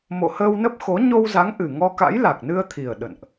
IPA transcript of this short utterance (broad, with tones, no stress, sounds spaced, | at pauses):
m o̰˧˨ h əː˧ w n ə˦˥ p̚ x o˨˦ ɲ o˧ w z a˨˦ ŋ ʔ ɨ˨˩ ŋ ɔ˧ k a̰˧˥ j l a˨˩ k̚ n ɨ˧ ə̯ t̪ʰ i˨˩ ə̯ ɗ ə̰˧˨ n ʔ